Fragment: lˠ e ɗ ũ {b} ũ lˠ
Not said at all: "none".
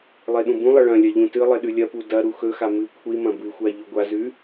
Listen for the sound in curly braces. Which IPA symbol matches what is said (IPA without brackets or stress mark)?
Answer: b